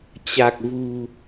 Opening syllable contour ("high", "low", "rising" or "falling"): low